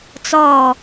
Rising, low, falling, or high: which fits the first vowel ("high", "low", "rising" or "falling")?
falling